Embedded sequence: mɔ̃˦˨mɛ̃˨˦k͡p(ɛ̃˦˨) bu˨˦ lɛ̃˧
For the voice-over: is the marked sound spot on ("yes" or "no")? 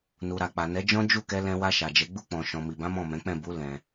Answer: yes